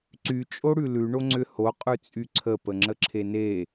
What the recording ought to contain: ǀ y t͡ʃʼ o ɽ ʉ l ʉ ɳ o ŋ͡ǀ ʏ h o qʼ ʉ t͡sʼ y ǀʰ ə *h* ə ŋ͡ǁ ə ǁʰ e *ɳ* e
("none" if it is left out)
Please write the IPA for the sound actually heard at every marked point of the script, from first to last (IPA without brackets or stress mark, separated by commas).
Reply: p, n